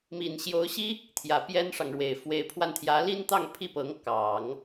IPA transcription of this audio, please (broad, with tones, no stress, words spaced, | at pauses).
mi˨˩nɕjo˧˥ʊ̯ɕi˥ | t̪ʰjä˨˩pjɛ˥nʂɑ˨ŋɻwe˨˩ɪ̯ fwe˧˥ɪ̯pʰwa˧nt̪ʰjä˧˥ li˥nt̪ɑ˥˧ŋ pʰi˥˩pɤ˧˥ŋ kɑ˨˩˦ŋ